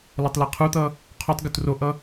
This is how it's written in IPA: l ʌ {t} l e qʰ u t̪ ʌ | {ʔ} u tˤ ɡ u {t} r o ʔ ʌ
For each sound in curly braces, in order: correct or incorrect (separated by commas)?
incorrect, incorrect, correct